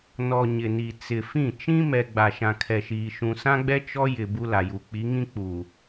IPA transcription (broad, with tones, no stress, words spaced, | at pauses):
nɔ˨ ɲɪ˨ni˨ t͡sɪ˨fĩ˦˨ t͡ʃĩ˦mɛ˨ ɡ͡ba˨ʃã˨kʰɛ˨ʃiː˨ ʃũ˨sã˦ɡ͡bɛ˦ t͡ʃɔ˦jɪ˨ bu˦la˨ju˨ k͡pi˨˦ŋĩ˦ k͡pu˨